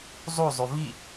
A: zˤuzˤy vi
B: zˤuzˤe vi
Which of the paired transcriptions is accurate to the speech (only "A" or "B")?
A